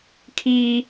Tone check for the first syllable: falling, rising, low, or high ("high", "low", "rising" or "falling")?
high